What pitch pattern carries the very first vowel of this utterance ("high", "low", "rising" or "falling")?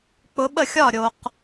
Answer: rising